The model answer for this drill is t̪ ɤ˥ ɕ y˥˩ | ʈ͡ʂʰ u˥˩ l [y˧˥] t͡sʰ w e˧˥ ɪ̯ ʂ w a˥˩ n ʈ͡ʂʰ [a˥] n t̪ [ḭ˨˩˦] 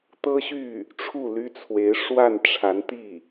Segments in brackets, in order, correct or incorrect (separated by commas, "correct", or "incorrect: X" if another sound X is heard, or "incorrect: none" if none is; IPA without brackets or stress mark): incorrect: y˥, incorrect: a˧˥, incorrect: i˥˩